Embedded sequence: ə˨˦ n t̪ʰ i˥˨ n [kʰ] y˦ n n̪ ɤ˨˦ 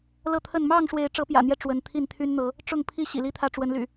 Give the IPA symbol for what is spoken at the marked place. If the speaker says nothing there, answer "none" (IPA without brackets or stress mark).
t̪ʰ